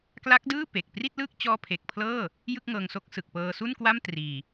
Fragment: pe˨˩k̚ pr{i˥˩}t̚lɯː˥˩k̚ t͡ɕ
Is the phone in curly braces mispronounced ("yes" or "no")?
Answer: no